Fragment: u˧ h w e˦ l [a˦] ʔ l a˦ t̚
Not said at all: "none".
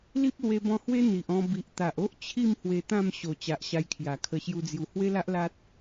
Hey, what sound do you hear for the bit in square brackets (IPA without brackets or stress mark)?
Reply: a˦